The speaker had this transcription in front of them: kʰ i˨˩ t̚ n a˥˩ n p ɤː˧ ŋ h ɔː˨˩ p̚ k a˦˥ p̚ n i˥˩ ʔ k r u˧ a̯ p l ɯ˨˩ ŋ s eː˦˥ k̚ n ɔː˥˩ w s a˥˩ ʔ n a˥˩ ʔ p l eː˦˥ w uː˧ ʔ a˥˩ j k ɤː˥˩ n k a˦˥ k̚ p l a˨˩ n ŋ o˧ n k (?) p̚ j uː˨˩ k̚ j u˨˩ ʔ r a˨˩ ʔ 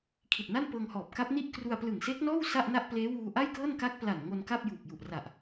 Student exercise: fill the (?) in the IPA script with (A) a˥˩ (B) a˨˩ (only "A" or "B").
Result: A